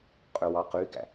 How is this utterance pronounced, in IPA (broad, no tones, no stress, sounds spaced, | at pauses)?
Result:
qʼ ø w ɑ q y ɡ æ̰